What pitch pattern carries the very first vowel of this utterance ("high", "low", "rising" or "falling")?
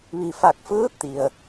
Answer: low